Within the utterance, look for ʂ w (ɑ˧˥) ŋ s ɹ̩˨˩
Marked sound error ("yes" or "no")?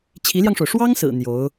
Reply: yes